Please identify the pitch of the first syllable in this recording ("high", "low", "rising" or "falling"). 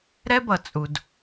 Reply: high